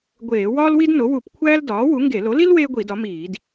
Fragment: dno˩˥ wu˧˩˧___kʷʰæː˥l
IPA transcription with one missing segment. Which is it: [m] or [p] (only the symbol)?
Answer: p